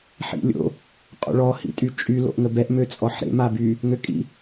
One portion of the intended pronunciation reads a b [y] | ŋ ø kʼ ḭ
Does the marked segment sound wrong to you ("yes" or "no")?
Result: no